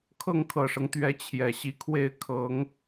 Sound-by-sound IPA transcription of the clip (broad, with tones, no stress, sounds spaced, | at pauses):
kʰ ɤ˥˩ ŋ kʰ ɤ˨˩ ʂ ɤ˦ ŋ t̪ ɥ ɛ˧˥ t͡ɕʰ j ɛ˨˩ ɕ i˧˥ kʰ w e˥˩ ɪ̯ kʰ ɤ˧˥ ŋ